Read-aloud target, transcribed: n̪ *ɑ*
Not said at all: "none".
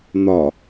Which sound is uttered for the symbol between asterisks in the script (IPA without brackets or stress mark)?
ɒ